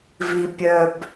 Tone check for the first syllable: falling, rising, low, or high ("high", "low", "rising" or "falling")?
low